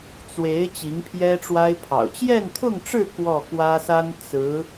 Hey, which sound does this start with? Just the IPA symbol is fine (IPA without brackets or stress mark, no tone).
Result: t͡s